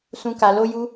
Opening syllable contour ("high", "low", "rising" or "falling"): high